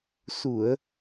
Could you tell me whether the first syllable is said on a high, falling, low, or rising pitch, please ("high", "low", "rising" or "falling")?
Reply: low